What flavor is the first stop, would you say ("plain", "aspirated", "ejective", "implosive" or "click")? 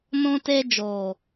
plain